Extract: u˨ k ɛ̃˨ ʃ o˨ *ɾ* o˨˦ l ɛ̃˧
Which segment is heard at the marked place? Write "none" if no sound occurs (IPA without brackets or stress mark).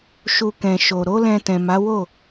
ɾ